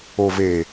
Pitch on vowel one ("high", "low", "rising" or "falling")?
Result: low